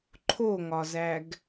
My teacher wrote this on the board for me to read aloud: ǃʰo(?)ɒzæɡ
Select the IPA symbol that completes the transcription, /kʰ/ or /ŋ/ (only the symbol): ŋ